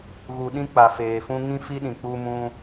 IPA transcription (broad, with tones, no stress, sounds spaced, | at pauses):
ɣ u˧ ɗ ĩ˦ k͡p a˧ f eː˧ f ũ˦ ŋ ĩ˦ f i˦ ɗ ĩ˧ k͡p u˦ m ũ˦